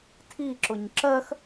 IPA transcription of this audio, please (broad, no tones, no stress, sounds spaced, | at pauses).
tʰ i ǁ ʊ ɲ ǁ ɜ x